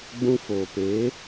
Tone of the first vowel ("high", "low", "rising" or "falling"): high